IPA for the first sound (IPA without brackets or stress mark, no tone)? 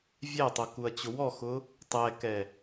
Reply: vʲ